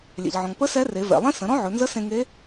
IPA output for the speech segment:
lʲ ɛ̰˩ ʎ ʕ ɔ̃˩ ŋ p ə˧˥ s ɛ˧˥ r e˩˧ v ɛ̰˩ lˠ ẽ˥ s ə̃˩˧ ɾ ɔ̃˥ ʕ ɵ˩˧ n z ə˧˥ s ẽ˧ ŋ e˧˥

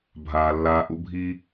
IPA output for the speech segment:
bʱ aː˩ lː aː˨ ʔ ṵ˦ bʱ i˦

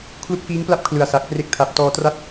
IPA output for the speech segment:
kʰ l u˦˥ k̚ f iː˦˥ ŋ p l a˥˩ p̚ kʰ l ɯ˨˩ a̯ s a˨˩ k̚ p r e˦˥ k̚ tʰ a˨˩ p̚ t ɔː˧ t r a˥˩ t̚

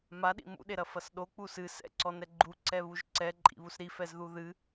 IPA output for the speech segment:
m a ɗ ḭ m ṵ ɗ e ɾ ɐ f ɐ s ɗ o k͡p u s ɨ s ɛ̰ ǀ ɔ n ɛ ɡ͡ǃ u ǀ ɛ β u ʒ ǀ ɛ ǃʼ ḭ β u s ɾ i f ɛ z ð u ð ɨ

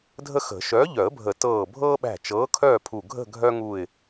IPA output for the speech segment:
dʱ ə˦ x ə̤˨˩˦ ʃ œː˨˥ ʎ œ˨˩˦ ə̯ bʱ ə˨˩˦ t ɤː˧˩ bʱ ɤː˦ ɓ æ̤˧˩ t͡ʃ ɤː˨˥ kʰ œː˥˨ pʰ u˧˩ ɡʱ ə̤˥˨ ɡʱ œ˦ ŋ u˧˩ ɪ̯

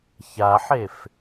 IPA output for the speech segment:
ç a ħ e f

